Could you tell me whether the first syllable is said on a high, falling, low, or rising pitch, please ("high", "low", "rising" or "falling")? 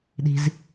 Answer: low